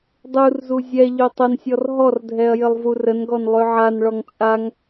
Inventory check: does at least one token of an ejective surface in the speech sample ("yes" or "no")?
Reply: yes